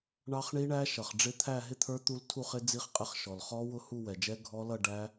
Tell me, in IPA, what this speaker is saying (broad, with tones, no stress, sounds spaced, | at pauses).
ɳ ɑ˦˥ χ ɳ i˦˥ ɳ æ˦˥ ʃ ʌ˩ χ ɖ͡ʐ ɪ˦˥ t̪ʰ æ˥˧ ɦ ɪ˥˧ t̪ʰ ə˞˦˥ t̪ u˦˥ l tʰ u˥˧ χ ɪ˦˥ d͡z i˦˥ χ qʼ ɪ˦˥ χ ʃ ɔ˩ l χ ɔ˦˥ w ʊ˥˧ h u˥˧ w ɛ˩ d͡ʒ ɛ˦˥ ɡʱ ɔ˦˥ l ʌ˥˧ ɖ æ˦˥